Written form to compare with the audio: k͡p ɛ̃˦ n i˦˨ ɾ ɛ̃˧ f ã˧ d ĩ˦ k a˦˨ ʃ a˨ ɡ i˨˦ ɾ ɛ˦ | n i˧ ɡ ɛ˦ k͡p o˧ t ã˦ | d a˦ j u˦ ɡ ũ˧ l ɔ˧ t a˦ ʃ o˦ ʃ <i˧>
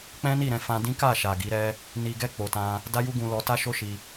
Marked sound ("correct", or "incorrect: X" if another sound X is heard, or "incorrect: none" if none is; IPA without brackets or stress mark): correct